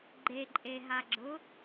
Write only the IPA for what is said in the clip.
ɡ͡ǃ e ǃʼ e ɦ a ɡ͡ǁ ʊ

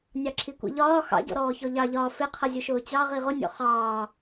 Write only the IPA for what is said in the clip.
nʲ ɑ ǁʰ i kʷ ḭ ʎ ɒː x ɑ̰ ɟ ɔ̰ ɾ ɔː ç ɔ ʎ ɑ ʎ ɒː f ɪ qʰ ʌ zʲ ʊ ʃ ʊː t͡ɕ ɑ ʁ i ʁ ʊ nʲ ɔ̰ χ ɑː

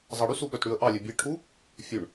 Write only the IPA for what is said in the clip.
zˤ ɑ ɽ y s u ɓ œ t ɽ ʉ ə̯ ʔ ɑ lʲ ɛ bʲ e ʈʰ u | fʲ ʉ ɳ

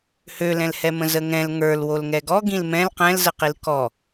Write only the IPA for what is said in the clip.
h ø l ɛ̃ l h ɛ m ə̃ z ə ŋ ɛ̃ l ŋ ə˞ l w o l ŋ ɛ ɡ ɔ ɡ ĩ l m ɛ̃ l q ɛ̃ l z ə q i l k ɔ

